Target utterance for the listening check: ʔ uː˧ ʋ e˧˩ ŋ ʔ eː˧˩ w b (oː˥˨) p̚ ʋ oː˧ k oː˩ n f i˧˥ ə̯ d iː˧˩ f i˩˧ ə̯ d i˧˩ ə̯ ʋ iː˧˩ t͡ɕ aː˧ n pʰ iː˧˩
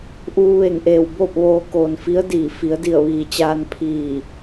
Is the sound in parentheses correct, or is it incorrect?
correct